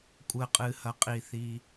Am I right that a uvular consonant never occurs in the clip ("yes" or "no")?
no